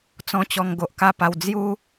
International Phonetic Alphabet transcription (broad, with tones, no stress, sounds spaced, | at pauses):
t͡s ɔ̃˦ t͡ɕ ɔ˧ ŋ ɡ o˨ ʔ k a˥˧ p a˧ w d͡z j u˦